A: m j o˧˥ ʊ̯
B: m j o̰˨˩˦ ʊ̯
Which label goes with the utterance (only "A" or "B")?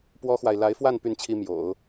B